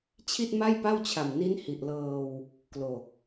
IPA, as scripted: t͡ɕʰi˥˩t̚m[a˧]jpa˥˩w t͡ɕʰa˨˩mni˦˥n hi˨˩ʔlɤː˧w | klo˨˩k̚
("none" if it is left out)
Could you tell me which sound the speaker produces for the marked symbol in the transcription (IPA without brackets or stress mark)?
a˥˩